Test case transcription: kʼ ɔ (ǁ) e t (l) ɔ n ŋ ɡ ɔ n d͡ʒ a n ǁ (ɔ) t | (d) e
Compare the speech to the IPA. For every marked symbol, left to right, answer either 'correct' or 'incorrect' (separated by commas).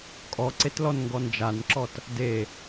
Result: incorrect, correct, correct, correct